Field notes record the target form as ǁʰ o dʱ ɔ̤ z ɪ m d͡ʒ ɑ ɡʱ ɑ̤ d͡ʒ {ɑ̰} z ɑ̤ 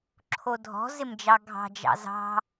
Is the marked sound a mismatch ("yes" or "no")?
no